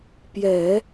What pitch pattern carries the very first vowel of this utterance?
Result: low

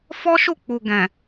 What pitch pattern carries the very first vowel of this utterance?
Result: high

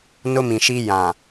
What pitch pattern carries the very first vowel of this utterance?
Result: high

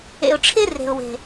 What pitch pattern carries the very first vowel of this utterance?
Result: low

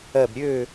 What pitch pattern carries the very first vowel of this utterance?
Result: falling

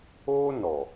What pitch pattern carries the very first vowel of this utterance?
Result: high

